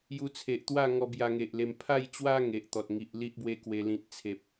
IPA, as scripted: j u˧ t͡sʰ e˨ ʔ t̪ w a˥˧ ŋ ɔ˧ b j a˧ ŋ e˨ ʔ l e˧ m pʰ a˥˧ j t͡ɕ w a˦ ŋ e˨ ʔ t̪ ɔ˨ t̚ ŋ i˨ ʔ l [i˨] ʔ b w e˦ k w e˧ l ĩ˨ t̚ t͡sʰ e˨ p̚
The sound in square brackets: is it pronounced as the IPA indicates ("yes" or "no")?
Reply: no